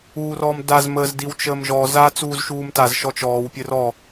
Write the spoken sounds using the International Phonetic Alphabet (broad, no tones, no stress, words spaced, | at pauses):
uːrɔːmdaz məːz diwt͡ʃəːmʒɔ za t͡suːzʃuːmtaz ʃɔt͡ʃɔːw pʲɘrɔ